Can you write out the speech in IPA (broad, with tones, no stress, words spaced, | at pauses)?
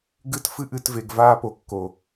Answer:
ɡɨ˦t fɨ˦ʔɨ˧tve˨ɡ vaː˦po˨˦kːo˨